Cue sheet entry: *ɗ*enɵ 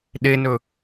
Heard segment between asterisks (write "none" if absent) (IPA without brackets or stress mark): ɗ